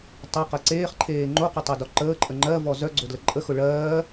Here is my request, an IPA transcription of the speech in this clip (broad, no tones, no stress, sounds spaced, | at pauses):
tˤ œ q ɐ ǀ eː χ ǃʰ eː ŋ͡ǃ o q ʊ tˤ ɜ d ɔ ǃ əː ǃʼ ə ŋ͡ǃ ɜ v ɔ z œ ɡ͡ǀ o d l ə ǃʼ ə x ʊ ɭ ɜː